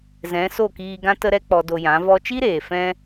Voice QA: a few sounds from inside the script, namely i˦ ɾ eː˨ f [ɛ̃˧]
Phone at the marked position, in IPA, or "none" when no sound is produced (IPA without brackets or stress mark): ɛ̃˧